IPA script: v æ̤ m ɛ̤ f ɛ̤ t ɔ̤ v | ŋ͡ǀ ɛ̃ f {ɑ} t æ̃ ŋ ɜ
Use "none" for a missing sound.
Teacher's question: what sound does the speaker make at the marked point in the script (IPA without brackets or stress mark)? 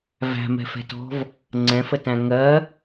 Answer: ə